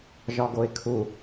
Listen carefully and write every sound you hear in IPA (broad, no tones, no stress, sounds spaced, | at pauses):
ʒ ɒ ɡ o ɪ̯ kʰ u